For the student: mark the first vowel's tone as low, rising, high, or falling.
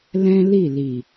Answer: high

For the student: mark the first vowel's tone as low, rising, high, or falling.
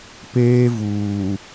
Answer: high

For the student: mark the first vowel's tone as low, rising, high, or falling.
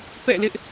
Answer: falling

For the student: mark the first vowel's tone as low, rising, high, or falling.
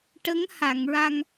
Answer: rising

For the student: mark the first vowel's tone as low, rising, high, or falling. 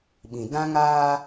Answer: low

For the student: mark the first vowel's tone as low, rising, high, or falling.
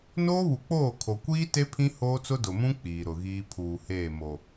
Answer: high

